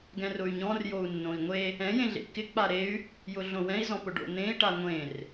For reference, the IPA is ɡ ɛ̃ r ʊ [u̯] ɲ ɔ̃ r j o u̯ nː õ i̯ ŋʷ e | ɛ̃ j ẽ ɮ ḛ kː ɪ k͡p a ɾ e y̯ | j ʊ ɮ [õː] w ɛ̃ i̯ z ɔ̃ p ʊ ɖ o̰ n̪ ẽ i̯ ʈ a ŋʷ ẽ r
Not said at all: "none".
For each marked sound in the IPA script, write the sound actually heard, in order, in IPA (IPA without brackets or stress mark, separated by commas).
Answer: y̯, õ